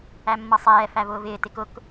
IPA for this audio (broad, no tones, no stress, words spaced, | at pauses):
æmːʌsˤɛː fævʊːvɪː tɪkʊk